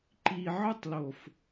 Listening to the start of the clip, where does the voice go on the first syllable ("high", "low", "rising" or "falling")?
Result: low